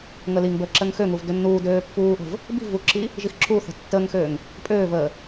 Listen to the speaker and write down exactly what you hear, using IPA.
ŋ ə l i ŋ b əː ǁ ə ŋ x ø ŋ u v d ø nː uː d øː pː uː ʔ ə̤ v | b i̤ v u ǁʰ i | ʒ i x ǁʰ uː θ ə̤ tː əː ŋ x øː ŋ | pʼ øː v əː

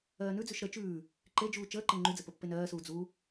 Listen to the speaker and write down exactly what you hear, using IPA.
ɜː n ʉ d͡z ʉ ʃ ɾ ə t͡ʃ ʉː | ǃ e d͡ʒ uː t͡ʃ əː ǃ e ŋ͡ǃ y d͡z ə p ə pː e n ɜː s uː d͡z u

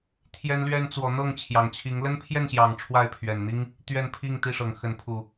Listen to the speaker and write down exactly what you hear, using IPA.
t̪ʰ j ɛ˦ n l ɥ ɛ˦ n t͡s w ɔ˨˦ n̪ ɤ˥˨ ŋ t͡ɕʰ j ɑ˨˩ ŋ t͡ɕʰ i˨˦ ŋ l ə˦ n pʰ j ɛ˥˨ n ɕ j ɑ˨˩ ŋ ʈ͡ʂʰ w a˥˨ ɪ̯ pʰ ɥ ɛ˨˩ n n̪ i˦ ŋ | t̪ ɥ ɛ˥˨ n pʰ i˥˨ ŋ t̪ i˥˨ ʂ ɤ˨˩ ŋ x ə˨˦ n pʰ u˨˩

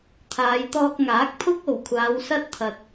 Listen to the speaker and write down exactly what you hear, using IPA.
t̪ʰ aː˨˧ j t̪ ɔː˧ k̚ ŋ aː˨˥ k̚ pʰ ʊ˥ k̚ o˨˩ w kʷʰ aː˨˧ w s ɐ˥ t̚ t̪ʰ ɐ˨ t̚

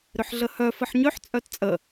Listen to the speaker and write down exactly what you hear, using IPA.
ɾ ʏ ħ ɮ ə h œ f ə ħ ɲ ø ħ t͡sʼ œ t t͡sʼ ə

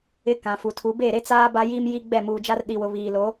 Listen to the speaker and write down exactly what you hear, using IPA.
ɪ˦ k ã˨ f u˨ tʰ u˨˦ b e˦˨ ɾ e˦ t͡s aː˦ b a˦ j iː˦ m j i˦ ɡ͡b ɛ˦˨ m uː˨ d͡ʒ a˦ r ɗ i˨ w ʊ˨ β iː˨ l o˨˦

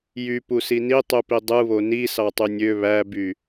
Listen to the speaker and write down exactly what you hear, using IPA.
j y p u s i n i tˤ y p i dˤ ɯ β o n i s ɑ tˤ y nʲ ø β æ b y

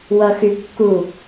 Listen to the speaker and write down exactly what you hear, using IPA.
w ʌ x y kː u

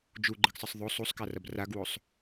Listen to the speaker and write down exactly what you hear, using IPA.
d͡ʒ u ɡ͡ǃ ɨ ɡ sˤ ɨ sˤ ðˤ o sˤ u sˤ k a r ɐ b r a ɡ w o sˤ

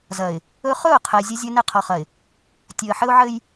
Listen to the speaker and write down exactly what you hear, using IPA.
z ɐ˨ ɪ̯ | ɵ˦ χ ɵ˦˨ ʊ̯ qʰ ɛ˨ zʲ ɐ˦ zʲ ɘ˦ n ɘ˦˨ qʰ ɔ˨ χ ɐ˨ ɪ̯ | tʲ ɵ˨ ə̯ ħ ɘ˦ ʊ̯ ʕ ɘ˦ j

